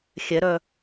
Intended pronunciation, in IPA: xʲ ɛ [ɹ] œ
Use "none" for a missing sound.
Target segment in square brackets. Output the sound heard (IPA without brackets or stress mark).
ɾ